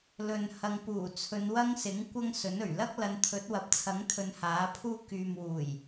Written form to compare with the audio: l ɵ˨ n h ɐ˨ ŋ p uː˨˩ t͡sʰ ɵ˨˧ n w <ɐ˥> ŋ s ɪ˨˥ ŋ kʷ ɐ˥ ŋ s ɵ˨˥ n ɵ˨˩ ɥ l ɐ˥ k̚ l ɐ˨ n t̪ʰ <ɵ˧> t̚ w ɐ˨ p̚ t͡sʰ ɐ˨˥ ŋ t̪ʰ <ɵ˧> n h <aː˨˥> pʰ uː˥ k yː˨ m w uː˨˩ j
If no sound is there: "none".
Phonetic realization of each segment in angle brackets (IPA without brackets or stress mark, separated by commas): ɐ˥, ɵ˨˥, ɵ˨˧, aː˨˥